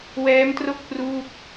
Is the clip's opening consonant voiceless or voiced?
voiced